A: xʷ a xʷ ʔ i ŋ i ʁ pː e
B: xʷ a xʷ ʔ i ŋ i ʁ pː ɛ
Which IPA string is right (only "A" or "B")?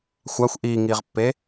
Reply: A